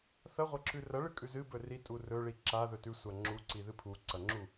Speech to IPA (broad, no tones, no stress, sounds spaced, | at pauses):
θ ɐ ʁʷ ɐ ǁ ʉ r ɐ ɭ ɨ kʼ ʉ z ɨ b ɵ r i tʼ u r ɵ ɭ i ǁ a ð ɵ t ʉ sʷ a ŋ͡ǁ u ǀ i ð ɨ pʰ u ǀ ɐ ŋ͡ǁ u